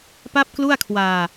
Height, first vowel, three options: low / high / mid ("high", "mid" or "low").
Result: low